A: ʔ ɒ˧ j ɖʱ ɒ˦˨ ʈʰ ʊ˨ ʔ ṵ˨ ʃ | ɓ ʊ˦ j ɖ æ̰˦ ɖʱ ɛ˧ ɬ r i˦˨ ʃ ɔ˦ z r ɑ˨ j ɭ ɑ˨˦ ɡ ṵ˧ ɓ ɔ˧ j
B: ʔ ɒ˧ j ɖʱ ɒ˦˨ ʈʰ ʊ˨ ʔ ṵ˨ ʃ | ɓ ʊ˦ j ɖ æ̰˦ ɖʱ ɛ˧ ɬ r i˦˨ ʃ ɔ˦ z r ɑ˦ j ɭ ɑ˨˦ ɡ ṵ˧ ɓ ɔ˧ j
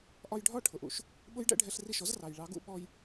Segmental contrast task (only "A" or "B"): A